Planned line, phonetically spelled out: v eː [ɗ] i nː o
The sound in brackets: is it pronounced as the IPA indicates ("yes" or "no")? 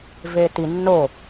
no